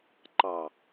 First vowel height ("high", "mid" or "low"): low